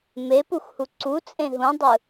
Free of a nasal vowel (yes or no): no